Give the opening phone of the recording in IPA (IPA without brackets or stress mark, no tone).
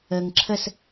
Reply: ə